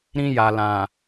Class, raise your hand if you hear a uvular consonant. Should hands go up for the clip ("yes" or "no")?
no